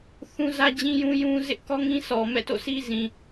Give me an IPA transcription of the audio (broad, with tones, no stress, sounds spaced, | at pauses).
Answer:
θ ũ˦ z ä˦ d͡ʑ ĩ˦ j ũ˦ j ũ˦ z ɪ˦ ʔ k ɔ˦ ŋ ĩ˦ s ɔ˨ m ɛ̰˦˨ t o̰˦˨ s i˦ z ĩ˨